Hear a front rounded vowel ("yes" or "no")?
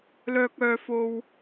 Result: yes